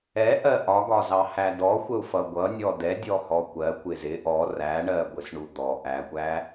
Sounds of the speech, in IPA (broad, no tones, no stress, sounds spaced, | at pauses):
ɛ ʔ ɜ ʔ ɒ ɡ ɒ z ɑ h æ d ɔ xʷ ə u̯ f ʌ ɡʷ ʌ nʲ ɔ d ɛ dʲ ɔ h ɔ kʷ ɜ kʷ ɪ z ɪ ʔ ɔ r æ ɳ ɜ ɡʷ ɪ s ɳ u d̪ ɔ ʔ æ kʷ æ